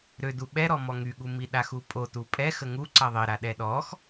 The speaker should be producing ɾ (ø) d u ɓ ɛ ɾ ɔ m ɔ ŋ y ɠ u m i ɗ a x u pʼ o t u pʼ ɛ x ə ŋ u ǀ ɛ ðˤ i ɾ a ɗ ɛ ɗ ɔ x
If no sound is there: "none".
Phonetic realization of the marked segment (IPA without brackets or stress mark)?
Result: ø